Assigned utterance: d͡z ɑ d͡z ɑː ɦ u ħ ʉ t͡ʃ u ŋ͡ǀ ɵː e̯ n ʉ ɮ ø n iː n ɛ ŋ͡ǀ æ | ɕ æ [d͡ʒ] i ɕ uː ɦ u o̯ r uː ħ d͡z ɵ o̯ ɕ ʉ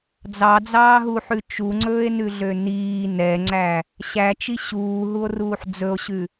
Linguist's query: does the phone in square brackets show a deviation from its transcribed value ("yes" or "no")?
yes